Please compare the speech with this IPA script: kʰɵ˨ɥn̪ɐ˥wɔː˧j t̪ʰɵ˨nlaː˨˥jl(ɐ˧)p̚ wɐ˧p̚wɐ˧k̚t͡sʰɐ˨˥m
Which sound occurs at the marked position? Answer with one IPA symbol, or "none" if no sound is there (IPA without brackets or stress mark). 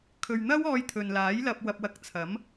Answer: ɐ˧